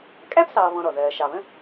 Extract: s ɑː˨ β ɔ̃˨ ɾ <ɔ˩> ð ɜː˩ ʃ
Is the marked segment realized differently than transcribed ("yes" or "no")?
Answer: no